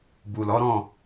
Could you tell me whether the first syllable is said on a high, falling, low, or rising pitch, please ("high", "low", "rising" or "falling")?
low